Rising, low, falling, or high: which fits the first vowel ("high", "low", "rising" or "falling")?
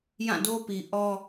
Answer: falling